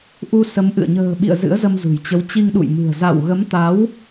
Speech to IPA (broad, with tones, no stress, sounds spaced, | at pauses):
ʔ u˧ s ə˨˦ m ʔ ɨ̰˧˨ ə̯ ɲ ə̤ː˨˩ ɓ ḭ˧˨ ə̯ z ɨ̰˧˥ ə̯ z ə˧ m z ṳ˨˩ j t͡ɕ ə˨˦ w t͡ɕ i˧ ŋ ɗ ṵ˧˨ j m ɨ̤˨˩ ə̯ z a̰˧˨ w ɣ ə˨˦ m t̪ a˨˦ w